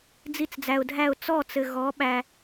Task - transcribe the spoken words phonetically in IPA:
d͡z i˧ t͡s d͡z æ˨ ʊ̯ dʱ æ˦˨ ʊ̯ t͡s ɔ˦˨ t͡s ɘ˨ ɣ ɔ˨˦ ɓ æ˧

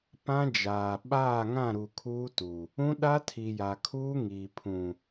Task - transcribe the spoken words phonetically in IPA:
p ã˦ d͡ʒ aː˨ ɓ aː˦˨ ŋ ã˦˨ ɾ u˨ kʰ uː˦ t u˨ | ũ˦ ɗ a˦ tʰ i˨ j a˨ kʰ uː˦ ŋ iː˨ pʰ ũ˨

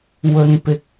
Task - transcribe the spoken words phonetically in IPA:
w ɵ˨ n p ɪ˨ k̚

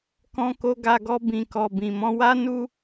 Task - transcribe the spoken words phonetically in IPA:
k ɔ̃˧ k o˧ ɡ a˧ ɡ ɔ˧ b ĩ˨ k ɔ˨ b ĩ˨ m ɔ̃˧ w a˦ n u˦

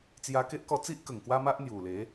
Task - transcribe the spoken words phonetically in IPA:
t͡s j a˧ k e˦ ʔ k ɔ˧ t͡s i˦ ʔ k ə˨˩ ŋ k w a˦ m a˦ ʔ n̪ j u˨˩ l e˨˦

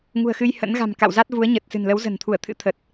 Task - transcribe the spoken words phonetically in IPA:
ŋ ṳ˨˩ ə̯ x ɨ˧ j h ə̰˧˥ n ɣ a̤˨˩ m k a̰˧˨ w z a˦˥ t̚ v u˨˦ ə̯ ɲ ə˨˩ t̚ s ɨ̤˨˩ n l ə˨˦ w z ə̤˨˩ n t̪ʰ u˧˩ ə̯ t̪ʰ ɨ̰˧˥ t̪ʰ ə˨˩ t̚

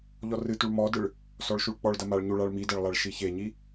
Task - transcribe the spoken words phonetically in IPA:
ʎ ɔ r ɨ t u ɭ m ɔ d ɨ ɭ | s ɔ ɭ ʃ u ɭ k͡p ɔ ɭ d ɐ m a ɭ ɲ u ɭ a ɭ m i d ɛ ɭ lˠ a ɭ ʃ i ç e ɲ i

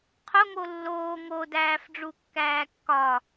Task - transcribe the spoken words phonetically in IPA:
qʰ o ŋ o lː oː ŋ o d æː f ɖ͡ʐ u kː æː kː ɒ

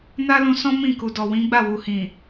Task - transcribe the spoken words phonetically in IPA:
n a˦ l ũ˧ s ɔ̃˦ m ĩ˦˨ k u˨ d ɔ˨ w ĩ˨˦ ɡ͡b a˦˨ w u˨ h ĩ˨

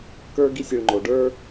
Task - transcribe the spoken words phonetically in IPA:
k ə˞˦ ɡ i˦˨ sʲ i˨ ɭ ŋ͡ǃ o˨ ɖ ə˞˦

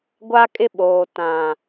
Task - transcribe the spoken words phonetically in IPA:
ɡʷ a˦ kʼ ɪ˦ ɓ oː˨ t ã˨

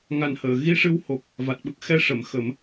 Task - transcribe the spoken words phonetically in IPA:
ŋ a˨˩ n h əː˨˩˨ ɣ i˧ ʂ ɨ˧ w h o˨˩ k̚ | v a˨˩ t̚ ɓ ə˦˥ k̚ x ɛ˧ ʂ ə˨˩˨ m x ə˨˩˦ m

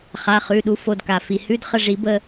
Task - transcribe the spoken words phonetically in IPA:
χ a˩˧˩ χ ʉ˩˧˩ ɗ u˩˥ f o˩˧˩ d k a˩ f i˩ h ʉ˧˥˧ d χ ə˦˨ ʐ i˨˩˦ b ə˦˨

